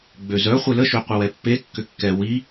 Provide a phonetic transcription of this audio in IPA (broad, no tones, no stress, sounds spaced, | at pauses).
ɡ͡b ø z œ χʷ e l ə ʃ ø qʷ ə w ɛ pː e kː ʏ kː ɛ w i